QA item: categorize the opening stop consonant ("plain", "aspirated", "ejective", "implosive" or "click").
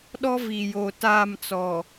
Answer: implosive